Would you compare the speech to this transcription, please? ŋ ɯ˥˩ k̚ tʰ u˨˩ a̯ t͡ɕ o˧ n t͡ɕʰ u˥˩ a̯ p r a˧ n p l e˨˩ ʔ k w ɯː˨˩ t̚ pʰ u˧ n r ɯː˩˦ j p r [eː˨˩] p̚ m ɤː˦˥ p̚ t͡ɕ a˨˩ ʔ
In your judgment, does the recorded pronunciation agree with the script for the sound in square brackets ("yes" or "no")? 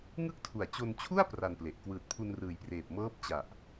yes